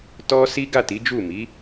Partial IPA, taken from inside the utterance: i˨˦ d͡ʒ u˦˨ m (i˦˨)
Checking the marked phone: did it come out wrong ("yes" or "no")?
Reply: yes